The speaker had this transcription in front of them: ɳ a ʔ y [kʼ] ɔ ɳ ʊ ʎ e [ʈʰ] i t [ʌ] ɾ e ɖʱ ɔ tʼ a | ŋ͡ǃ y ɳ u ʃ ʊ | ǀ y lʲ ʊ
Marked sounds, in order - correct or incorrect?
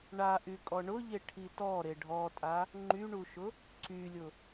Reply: correct, correct, incorrect: ɔ

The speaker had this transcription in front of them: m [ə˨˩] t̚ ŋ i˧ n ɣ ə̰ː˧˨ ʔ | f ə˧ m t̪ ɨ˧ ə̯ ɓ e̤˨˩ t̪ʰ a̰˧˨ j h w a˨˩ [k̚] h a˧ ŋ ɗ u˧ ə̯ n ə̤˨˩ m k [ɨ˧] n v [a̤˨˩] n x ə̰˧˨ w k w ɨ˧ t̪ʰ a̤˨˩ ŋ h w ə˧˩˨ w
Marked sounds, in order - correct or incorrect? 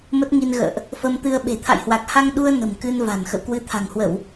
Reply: incorrect: ə˦˥, correct, correct, correct

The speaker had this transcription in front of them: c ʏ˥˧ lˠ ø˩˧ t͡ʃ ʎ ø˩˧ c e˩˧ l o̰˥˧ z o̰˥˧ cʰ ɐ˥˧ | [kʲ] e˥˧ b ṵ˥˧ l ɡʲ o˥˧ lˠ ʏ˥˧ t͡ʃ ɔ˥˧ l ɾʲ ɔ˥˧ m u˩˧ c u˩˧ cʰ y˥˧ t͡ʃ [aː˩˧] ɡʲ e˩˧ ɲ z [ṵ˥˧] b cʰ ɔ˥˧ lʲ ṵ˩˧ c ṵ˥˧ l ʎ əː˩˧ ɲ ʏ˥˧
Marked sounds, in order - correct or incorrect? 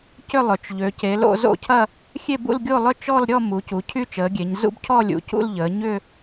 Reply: incorrect: xʲ, incorrect: əː˩˧, correct

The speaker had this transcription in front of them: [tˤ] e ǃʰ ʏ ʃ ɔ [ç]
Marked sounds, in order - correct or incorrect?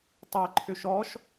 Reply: correct, incorrect: ʃ

